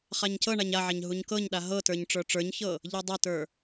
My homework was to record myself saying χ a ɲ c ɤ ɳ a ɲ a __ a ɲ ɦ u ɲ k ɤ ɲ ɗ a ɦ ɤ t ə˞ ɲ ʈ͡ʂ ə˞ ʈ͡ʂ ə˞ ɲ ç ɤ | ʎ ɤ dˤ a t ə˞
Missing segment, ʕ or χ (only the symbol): ʕ